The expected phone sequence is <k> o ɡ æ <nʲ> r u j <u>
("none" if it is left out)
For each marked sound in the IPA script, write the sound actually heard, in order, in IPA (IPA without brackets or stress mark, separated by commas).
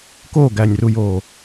k, nʲ, o